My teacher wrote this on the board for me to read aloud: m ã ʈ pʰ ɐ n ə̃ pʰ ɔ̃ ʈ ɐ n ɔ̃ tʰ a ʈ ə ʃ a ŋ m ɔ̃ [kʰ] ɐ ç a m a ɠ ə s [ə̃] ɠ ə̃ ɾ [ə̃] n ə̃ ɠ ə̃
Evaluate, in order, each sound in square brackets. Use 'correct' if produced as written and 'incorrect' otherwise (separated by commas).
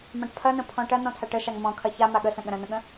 correct, correct, correct